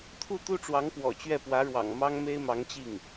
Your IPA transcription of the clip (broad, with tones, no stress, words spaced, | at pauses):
t̪ʰu˥˩t̪u˥ʈ͡ʂwɑ˧˥ŋ pwɔ̰˨˩t͡ɕɥɛ˥˩pwä˧˥ɻwɑ̰˨˩ŋ mɑ˥ŋme˥ɪ̯mɑ˧˥ŋ t͡ɕi˥˩ŋ